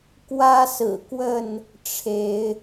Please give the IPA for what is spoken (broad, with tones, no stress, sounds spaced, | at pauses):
k w ä˦ s ɹ̩˨˩ k w ə˥˨ n | ʈ͡ʂʰ e˨˦ ɪ̯